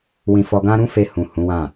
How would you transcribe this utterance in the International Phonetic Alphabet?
w ĩ˧ f ɔ˧ ɡ ã˦ ɾ ũ˦ f e˧ h ũ˨ h ũ˨˦ w ã˦˨

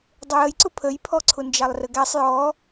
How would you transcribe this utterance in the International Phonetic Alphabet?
dˤ ʊ j ə j ǀ ʊ pʰ ə j pʰ ɔ ǀʰ ʊ n d͡ʒ ɑ lˠ r ə ɡ æ sˤ j ɔ

